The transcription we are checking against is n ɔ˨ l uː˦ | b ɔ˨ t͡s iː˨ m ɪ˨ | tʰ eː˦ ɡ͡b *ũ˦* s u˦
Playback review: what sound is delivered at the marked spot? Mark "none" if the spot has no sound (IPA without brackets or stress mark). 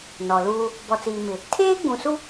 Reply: ũ˨